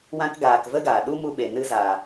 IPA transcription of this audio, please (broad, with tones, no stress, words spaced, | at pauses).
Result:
wã˧kɡaː˨k və˦ɡaː˨ɗu˦ mu˧ɓe˨ nɨ˧zaː˨